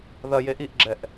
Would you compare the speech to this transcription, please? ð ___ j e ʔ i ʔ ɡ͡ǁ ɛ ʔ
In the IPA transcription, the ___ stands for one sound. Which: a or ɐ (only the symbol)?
ɐ